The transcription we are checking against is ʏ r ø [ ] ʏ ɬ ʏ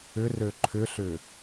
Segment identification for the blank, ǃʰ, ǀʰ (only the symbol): ǃʰ